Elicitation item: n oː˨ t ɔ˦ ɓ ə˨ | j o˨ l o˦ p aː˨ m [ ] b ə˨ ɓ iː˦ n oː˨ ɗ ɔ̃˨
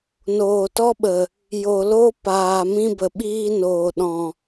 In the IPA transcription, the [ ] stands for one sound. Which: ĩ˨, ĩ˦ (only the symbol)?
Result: ĩ˦